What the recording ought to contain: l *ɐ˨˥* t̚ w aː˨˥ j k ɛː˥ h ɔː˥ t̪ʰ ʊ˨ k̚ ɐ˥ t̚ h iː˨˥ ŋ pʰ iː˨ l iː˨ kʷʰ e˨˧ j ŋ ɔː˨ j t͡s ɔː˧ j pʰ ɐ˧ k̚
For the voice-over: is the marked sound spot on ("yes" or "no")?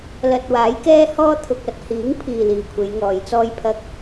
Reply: no